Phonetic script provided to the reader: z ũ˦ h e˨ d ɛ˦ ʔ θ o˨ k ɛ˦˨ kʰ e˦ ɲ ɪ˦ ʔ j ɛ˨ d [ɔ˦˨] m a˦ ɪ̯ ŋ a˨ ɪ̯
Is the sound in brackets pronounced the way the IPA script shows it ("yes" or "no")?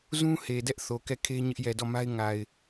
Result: yes